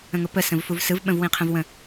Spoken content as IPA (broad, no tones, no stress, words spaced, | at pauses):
ə̃ŋʊpə sə̃vfuvsɯv ɓə̃vwĩqʰə̃vwə̃